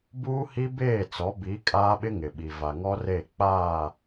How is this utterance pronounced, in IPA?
b uː˦ h i˦ b eː˦˨ t͡s ɔ˨˦ b i˨˦ kʼ aː˦ ɓ ɪ˦ ŋ ɪ˨ ɓ i˨ v a˨ ŋ ɔ˦ r e˦˨ k͡p aː˦˨

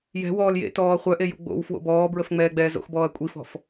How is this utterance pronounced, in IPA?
j ɛ̤ w ɔː l j ḛ t ɔː χʷ œ ʔ e j ṵ ɡ͡b o̰ w f w o̰ b ɔː b ɹ ə f ŋ͡m ɛː ɡ͡b ɛː z o̰ x b ɔː ɐ̯ kʷʼ i f ɔ̤ f

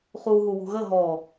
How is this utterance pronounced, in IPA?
χ u ɦ u w ṳ ɣ ə ɦ ɔ

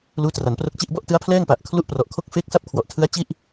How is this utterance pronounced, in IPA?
l uː˦˥ t r a˩˦ n p r o˦˥ k̚ t͡ɕ i˥˩ ʔ b ɔ˥˩ ʔ t ɯ˦˥ a̯ pʰ l ɛː˥˩ ŋ p a˨˩ ʔ kʰ l u˥˩ ʔ p r ɔ˨˩ ʔ kʰ o˥˩ k̚ f eː˦˥ k̚ s a˦˥ p̚ kʰ w ɔ˨˩ ʔ tʰ ɯ˦˥ a̯ t͡ɕ i˥˩ ʔ

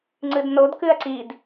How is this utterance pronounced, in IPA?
ŋ͡ǀ ɨ d n o d k ʉ ɐ̯ ǀ i d

